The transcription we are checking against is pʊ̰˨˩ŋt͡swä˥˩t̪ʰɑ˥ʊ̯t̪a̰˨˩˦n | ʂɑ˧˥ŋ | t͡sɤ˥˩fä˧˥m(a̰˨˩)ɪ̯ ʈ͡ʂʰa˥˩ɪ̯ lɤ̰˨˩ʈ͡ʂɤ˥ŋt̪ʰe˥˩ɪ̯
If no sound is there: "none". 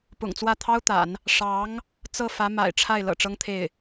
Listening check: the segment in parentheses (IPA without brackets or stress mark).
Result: a̰˨˩